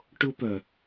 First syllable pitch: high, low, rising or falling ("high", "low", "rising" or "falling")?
high